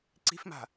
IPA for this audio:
ǀi̤fma̤

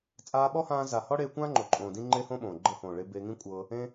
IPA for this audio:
t͡sʼaː˧ɓɔ˦hãː˧ za˨hɔ˦ɽeː˧kʷã˦ ŋ͡ǃo˨ǃʼõː˨ dĩ˦ŋ͡ǃe˦hõ˦ɓõː˨ ɡ͡ǃɤ˧hõː˨ɭe˧ beː˧ŋĩ˦kʷʼɤː˧ | ẽ˧

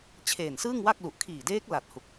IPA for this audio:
t͡ɕʰeː˨˩nsɯː˥˩ŋwa˥˩k̚lu˨˩ʔ kʰiː˨˩deː˦˥k̚la˨˩t̚ hu˨˩k̚

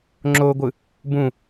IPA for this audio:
ŋ͡ǁoɡʷɯ | bũ

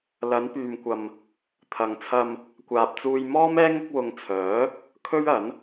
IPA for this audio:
lɐ˨˧npyː˨mkʷɐ˨m | t̪ʰɐ˨ŋt͡sʰɐ˧m | kʷaː˨p̚t͡suː˧j mɔː˥mɛː˥ ŋʊ˥k̚ wʊ˧ŋt͡sʰœː˨˥ | kʰɵ˥ɥɐ˨˥n

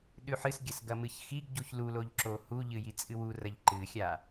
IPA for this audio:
ɗʉħɨsɡʲɐs ɡɐmɨçxiɡ ɟuçluloʎ ǁohuʎɨ jit͡sʼɨwu rɐʎǃɨxʲa

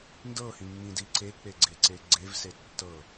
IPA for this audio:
ndɤhĩŋ͡mĩdi ǀek͡peɡ͡ǀeǀe ɡ͡ǀevse tːɤ

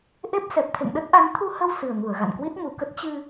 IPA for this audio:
ʔe˦˥p̚ sɛ˨˩p̚t̪ʰḛ˧˨ŋɗə˦˥t̚ʔa˨˦n t̪ʰu˧hə˧w sɨ˨˩ə̯ŋu˧˩ə̯ɣa̰˧˨nkwi˦˥t̚ mu˧˩kə˦˥t̚ t͡ɕɨ˧

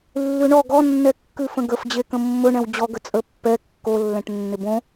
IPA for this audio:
lːʉɳɔ ɡɔnːɛ kːʉfə̃ɡəfd͡ʑe kə̃mːɵɳɛ̃w d͡ʑɔɡə t͡sʼəpːɛ kːolːɛ̃ʈ nːɪbõ

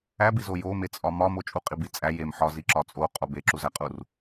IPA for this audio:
æbizo jomet͡sʼɒ mɒmo t͡ʃʼuqʼibi t͡sʼæ jem ħɒziǁɒ t͡sʼoqʼo beǁuzæqʼur

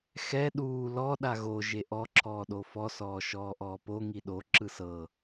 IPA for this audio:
xɛ ɗuː lɔ ɗaɣo ʒeʔɔ ǁʰɔːɗofɔ sɔːʃɔːʔɔːpo ŋiɗo ǁɯsɤ

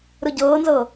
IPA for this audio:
ɾɯɟɤːnzɤ

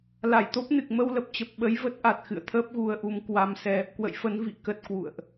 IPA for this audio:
la˧˩jt̪o˦˥p̚nɨ˨˩k̚ mə˧wlə˨˩p̚t͡ɕə˨˩p̚ ɓə˨˦jvə˦˥t̚ʔa˨˩t̚ xɨ̰˧˨ə̯t̪ʰəː˦˥p̚ɣu˧ə̯ʔu˧m kwa˧msɛ˧ | kwə̰˧˨jfə˨˦n vḭ˧˨ kə˦˥t̚kwṵ˧˨ə̯ʔ

